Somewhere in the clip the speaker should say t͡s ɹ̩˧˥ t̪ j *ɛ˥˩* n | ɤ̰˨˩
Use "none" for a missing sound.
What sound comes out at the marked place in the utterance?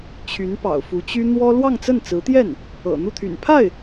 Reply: ɛ˥˩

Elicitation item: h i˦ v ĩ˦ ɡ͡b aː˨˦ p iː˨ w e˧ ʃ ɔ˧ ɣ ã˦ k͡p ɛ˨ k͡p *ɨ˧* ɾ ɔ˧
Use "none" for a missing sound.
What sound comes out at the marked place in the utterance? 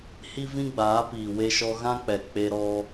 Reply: e˧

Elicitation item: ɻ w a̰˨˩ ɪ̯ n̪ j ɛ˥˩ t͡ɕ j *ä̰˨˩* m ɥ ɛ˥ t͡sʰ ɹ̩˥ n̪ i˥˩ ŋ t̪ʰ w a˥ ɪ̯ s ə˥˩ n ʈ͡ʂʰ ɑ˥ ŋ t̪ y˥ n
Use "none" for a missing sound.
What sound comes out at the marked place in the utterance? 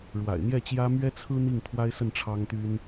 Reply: ä˥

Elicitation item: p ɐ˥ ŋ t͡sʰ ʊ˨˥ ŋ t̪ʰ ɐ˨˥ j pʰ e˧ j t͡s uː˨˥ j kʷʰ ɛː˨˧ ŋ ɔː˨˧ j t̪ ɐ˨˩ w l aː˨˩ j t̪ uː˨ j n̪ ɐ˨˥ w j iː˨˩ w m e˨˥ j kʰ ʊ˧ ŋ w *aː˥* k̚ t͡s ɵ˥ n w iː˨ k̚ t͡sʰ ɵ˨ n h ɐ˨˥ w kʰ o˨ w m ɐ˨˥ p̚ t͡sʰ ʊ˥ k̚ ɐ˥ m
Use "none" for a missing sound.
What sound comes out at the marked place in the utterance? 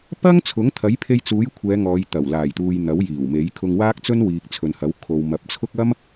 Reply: aː˥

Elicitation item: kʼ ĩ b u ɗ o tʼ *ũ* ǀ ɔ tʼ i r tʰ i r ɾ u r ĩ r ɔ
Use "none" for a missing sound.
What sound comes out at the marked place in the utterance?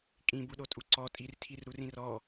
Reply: u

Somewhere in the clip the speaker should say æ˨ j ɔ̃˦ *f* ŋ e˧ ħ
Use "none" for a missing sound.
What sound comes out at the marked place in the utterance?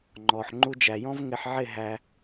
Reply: v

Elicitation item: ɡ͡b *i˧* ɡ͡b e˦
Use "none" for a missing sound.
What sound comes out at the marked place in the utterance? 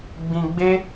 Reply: ĩ˧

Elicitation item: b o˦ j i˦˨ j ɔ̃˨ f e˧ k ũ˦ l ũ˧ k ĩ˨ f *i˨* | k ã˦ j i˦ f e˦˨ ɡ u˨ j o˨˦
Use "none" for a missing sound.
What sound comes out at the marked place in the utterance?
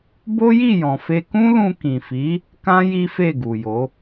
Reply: i˨˦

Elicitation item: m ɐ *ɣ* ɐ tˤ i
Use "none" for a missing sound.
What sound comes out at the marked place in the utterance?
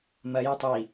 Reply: j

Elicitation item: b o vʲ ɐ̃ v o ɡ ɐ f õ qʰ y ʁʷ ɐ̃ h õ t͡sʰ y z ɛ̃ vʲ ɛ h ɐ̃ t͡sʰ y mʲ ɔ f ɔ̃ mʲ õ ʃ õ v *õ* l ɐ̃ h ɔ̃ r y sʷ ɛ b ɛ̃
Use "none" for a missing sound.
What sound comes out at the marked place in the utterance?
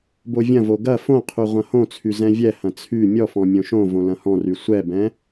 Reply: õ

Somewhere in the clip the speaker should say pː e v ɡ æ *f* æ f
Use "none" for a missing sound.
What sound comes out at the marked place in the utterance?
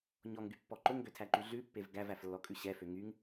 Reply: v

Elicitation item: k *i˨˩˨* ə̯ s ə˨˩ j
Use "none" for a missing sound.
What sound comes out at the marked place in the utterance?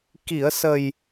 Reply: i˨˩˨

